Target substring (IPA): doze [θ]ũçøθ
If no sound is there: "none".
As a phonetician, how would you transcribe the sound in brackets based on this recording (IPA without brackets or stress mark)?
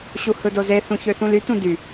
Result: θ